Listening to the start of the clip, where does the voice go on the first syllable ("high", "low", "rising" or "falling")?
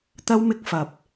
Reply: high